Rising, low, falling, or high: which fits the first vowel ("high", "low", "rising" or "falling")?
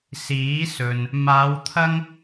rising